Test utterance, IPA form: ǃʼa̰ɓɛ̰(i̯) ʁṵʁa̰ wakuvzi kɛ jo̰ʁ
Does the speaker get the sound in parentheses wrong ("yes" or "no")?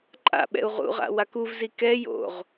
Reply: yes